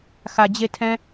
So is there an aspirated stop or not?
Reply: yes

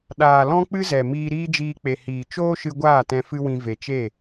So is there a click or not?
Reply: no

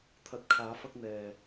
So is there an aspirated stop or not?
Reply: yes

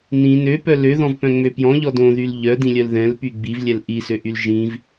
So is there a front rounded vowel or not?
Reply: yes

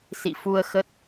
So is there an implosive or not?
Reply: no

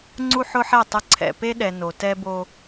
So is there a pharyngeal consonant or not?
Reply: yes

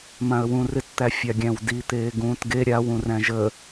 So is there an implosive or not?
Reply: no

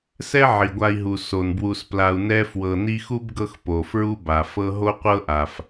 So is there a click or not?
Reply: no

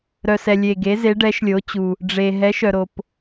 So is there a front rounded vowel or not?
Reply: yes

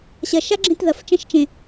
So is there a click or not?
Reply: yes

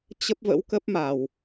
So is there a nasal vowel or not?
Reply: no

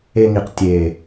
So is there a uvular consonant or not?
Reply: yes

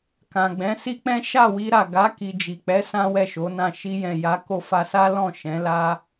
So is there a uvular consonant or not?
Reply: no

